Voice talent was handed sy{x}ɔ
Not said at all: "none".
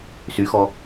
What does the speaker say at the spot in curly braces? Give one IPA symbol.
x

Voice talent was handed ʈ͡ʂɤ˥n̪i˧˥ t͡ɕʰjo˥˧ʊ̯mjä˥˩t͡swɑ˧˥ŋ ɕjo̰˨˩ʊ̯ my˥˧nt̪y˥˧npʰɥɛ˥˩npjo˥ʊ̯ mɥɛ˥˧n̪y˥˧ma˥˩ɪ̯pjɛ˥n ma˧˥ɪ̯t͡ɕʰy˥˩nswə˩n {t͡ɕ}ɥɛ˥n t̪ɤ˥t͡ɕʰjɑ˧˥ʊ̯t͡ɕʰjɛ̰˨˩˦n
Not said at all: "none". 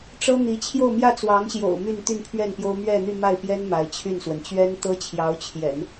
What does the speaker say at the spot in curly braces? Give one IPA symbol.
t͡ɕ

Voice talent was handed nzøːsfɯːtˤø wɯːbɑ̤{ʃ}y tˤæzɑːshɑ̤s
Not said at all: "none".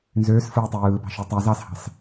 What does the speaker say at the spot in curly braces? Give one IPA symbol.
ʃ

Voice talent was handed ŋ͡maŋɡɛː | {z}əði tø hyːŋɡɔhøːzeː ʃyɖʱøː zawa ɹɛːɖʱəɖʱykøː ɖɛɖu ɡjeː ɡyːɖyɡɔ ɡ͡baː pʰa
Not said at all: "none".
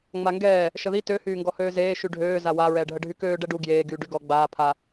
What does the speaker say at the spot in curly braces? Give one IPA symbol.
ʃ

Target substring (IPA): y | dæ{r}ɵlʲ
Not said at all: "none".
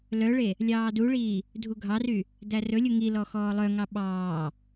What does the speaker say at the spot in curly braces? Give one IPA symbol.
r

